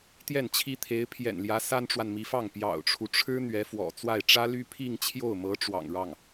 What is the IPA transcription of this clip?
t̪jɛ˥˩nt͡ɕʰi˥ t̪ʰe˧˥ɪ̯pʰjɛ̰˨˩nljä˧˥ sa˥nʈ͡ʂwa˨nmi˧˥fɑ˥˩ŋ pjɑ̰˨˩ʊ̯ʈ͡ʂʰu˦ʈ͡ʂʰɻ̩˥ n̪ɥɛ˧˥fwɔ̰˨˩ t͡swa˥˩ɪ̯ ʈ͡ʂä˥ly˥ pʰi˥˧ŋt͡ɕʰjo˥˩ʊ̯mɤ˧˥ ʈ͡ʂwɑ̰˨˩ŋɻɑ˥˩ŋ

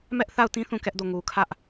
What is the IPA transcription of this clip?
mɛ˦ʔθa˦˨ʊ̯tĩ˦ θũ˦˨kɛ˦ʔdo˦˨ŋu˨ kʰä˦ʔ

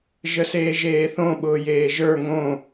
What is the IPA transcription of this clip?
ʒəseːʒeːθõ ɓʊːjeːʒə˞ ŋõ

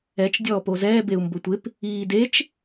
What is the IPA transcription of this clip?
ɛt͡ʃ dʲɔːpozɛː beu̯mbʊtʷɪp | iːdet͡ʃ

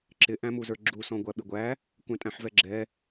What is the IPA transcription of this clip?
ǁɪʔæ̃mu zə˞ɡ͡ǁu sɔ̃ɡʷæɓɪɡʷæ | kʷæ̃tʼæ̃ħvɛɡ͡ǁɛ

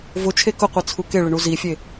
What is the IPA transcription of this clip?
vʊt͡ʃʰe kʊqʷit͡sʰu keɭɪɳu zifʲe

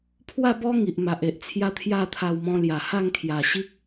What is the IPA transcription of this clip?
pʰwa˥˧bɔ˦ ŋi˨ʔma˨ʔe˨ʔt͡sʰja˦ t̪ʰja˥˧t̪ʰa˧wmɔ̃˧ lja˨˩ha˥˧ŋ kʰja˨˩ɕi˦k̚

